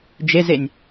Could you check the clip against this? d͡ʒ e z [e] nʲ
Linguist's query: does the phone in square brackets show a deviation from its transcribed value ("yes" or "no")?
no